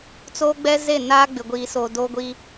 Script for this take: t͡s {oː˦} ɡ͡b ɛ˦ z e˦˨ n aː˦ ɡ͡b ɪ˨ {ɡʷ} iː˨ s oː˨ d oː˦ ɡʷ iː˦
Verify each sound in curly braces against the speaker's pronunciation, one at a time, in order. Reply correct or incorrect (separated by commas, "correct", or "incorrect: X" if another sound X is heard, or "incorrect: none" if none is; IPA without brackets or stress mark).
correct, correct